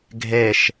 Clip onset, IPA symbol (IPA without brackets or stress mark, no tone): ɡʱ